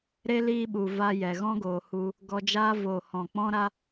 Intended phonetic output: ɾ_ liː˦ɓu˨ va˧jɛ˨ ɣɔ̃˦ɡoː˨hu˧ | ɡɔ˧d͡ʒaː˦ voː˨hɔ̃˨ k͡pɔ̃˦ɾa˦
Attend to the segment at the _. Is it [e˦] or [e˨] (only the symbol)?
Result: e˦